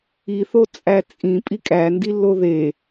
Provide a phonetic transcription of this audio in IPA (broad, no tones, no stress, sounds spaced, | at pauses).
i θ o t͡sʼ æ t͡sʼ ĩ pʼ i kʼ æ n d i lː o ð e